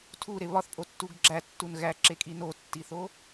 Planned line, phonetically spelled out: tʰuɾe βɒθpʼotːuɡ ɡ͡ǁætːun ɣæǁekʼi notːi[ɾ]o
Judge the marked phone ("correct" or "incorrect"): incorrect